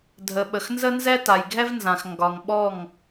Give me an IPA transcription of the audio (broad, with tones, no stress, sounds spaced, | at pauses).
dʱ ə˨ ɓ ə˨ x n z ə˦ n z ɛ˦ t a˨ j ɡʱ ɛ˦ v n z ã˨ x ŋ ɡ ɒ˨ ŋ ɓ ɔ˦˨ ŋ